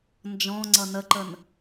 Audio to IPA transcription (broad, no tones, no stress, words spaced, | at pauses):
nd͡ʒɔ̃ ŋ͡ǀʌnəǃən